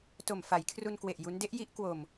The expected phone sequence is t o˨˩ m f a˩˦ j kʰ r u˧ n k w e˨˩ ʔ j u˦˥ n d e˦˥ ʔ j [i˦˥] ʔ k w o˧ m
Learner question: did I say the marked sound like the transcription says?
yes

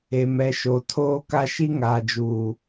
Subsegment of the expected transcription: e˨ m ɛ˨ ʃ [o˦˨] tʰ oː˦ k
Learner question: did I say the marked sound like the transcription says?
no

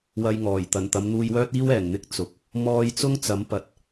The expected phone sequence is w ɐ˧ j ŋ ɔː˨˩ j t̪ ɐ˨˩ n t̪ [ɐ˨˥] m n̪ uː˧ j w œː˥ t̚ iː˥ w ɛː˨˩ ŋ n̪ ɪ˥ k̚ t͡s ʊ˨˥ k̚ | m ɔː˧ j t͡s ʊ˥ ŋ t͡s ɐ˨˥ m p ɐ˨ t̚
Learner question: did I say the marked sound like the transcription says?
no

